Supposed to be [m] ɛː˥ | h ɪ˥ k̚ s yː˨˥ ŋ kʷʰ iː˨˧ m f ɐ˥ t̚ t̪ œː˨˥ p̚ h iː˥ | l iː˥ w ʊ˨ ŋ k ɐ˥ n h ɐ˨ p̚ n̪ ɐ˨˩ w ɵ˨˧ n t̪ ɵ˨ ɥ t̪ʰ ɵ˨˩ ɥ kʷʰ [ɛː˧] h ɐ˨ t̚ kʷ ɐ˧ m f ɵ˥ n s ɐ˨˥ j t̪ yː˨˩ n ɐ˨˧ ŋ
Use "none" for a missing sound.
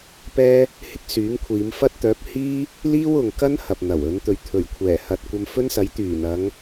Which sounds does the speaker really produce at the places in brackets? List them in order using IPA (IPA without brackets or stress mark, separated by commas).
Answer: p, ɛː˨˩